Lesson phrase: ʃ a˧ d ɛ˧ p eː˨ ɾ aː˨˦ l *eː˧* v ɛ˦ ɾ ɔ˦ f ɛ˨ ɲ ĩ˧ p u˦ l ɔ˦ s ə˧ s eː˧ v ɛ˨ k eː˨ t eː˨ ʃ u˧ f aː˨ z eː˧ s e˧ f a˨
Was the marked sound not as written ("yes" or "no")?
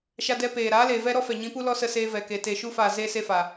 yes